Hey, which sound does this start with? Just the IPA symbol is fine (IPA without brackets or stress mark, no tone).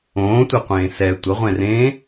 õː